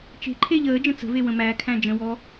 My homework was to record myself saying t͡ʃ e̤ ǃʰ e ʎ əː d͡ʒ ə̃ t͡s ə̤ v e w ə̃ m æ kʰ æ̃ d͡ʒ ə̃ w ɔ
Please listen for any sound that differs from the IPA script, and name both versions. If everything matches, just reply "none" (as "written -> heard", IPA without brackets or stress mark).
none